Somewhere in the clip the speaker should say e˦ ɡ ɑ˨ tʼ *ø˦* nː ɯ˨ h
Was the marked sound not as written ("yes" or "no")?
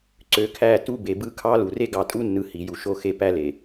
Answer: yes